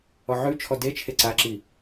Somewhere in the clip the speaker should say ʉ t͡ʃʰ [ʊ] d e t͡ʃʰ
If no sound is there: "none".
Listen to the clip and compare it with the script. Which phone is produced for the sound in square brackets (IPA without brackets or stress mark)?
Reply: ɔ